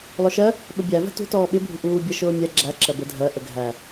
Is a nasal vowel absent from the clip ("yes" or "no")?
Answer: yes